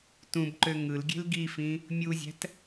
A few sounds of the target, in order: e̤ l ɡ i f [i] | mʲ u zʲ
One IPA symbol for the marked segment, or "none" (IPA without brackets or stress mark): ĩ